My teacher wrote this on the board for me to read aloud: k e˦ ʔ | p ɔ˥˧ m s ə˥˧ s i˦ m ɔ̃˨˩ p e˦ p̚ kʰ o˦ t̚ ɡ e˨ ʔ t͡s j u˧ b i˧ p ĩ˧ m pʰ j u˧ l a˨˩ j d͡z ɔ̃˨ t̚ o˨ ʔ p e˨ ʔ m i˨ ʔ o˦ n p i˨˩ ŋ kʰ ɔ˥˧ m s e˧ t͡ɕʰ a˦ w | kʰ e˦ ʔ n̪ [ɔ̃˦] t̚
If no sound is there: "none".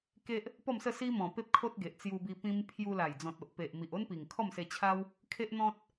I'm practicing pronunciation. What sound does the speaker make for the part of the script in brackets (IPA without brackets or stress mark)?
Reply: ɔ̃˦